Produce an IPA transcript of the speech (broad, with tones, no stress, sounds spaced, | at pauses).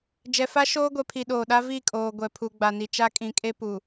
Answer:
d͡ʒ ɛ˨ f a˦ ʃ oː˦ ɡʷ ɛ˨ pʰ i˨ ɗ oː˨ ɗ a˦ v i˦˨ kʼ oː˨ ɡʷ ɛ˨ pʰ u˨ ɡ͡b a˨ n i˨ t͡ʃ a˦ kʼ ĩ˨˦ kʼ e˦ p u˨